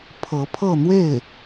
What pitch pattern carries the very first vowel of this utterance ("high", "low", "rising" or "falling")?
rising